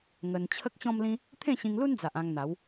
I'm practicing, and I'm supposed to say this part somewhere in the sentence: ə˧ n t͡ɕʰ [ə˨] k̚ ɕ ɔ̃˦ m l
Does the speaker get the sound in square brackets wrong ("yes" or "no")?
yes